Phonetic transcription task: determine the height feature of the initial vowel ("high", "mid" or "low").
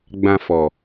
low